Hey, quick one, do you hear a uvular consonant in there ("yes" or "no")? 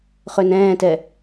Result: yes